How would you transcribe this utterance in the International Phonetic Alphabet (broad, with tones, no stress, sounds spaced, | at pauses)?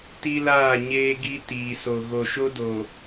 t i˦ l aː˦˨ ɲ eː˦ ɡ i˦ t iː˨ s o˨ ɣ o˨ ʃ o˦ d o˨